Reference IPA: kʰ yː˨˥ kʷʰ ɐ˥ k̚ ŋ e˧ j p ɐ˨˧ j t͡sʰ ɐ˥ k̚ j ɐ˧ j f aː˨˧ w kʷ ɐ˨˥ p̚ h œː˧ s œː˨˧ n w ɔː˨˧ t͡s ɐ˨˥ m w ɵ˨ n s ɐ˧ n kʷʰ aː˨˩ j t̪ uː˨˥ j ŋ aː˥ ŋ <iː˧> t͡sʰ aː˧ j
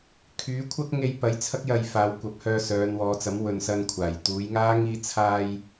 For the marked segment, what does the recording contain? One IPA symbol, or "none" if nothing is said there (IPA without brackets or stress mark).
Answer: iː˧